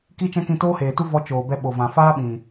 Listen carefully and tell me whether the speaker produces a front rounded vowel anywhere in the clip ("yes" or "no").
no